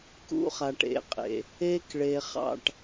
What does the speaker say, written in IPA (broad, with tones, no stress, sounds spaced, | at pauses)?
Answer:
k ṵ˦ χ a˨ ʈ ḛ˨˦ qʼ ḛ˨ | e˦ k ɭ e˨ χ ɑ̰˦˨ ʈ